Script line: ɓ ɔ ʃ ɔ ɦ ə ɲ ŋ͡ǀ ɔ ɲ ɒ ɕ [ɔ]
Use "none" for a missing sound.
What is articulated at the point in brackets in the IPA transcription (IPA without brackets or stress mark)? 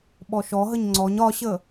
ə